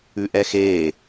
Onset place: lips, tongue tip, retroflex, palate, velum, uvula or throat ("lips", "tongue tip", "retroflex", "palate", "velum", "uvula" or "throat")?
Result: throat